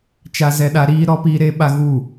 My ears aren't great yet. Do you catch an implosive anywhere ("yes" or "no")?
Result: yes